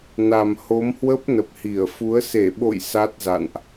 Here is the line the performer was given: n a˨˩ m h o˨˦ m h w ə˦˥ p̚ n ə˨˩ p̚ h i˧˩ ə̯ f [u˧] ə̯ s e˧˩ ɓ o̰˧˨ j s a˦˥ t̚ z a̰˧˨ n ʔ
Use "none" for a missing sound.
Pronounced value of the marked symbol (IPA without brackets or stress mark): u˨˦